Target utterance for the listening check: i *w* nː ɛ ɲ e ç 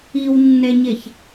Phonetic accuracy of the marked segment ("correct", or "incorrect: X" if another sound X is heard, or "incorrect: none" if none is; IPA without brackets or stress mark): correct